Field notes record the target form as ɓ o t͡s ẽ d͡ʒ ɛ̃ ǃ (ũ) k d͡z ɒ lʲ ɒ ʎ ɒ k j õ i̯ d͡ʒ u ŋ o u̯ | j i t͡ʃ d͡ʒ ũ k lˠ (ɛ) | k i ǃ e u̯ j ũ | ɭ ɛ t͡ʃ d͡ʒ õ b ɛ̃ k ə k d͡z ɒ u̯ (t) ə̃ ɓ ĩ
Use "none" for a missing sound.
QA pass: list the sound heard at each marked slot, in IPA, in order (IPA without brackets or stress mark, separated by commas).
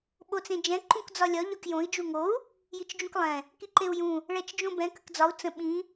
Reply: ũ, ɛ̃, t͡s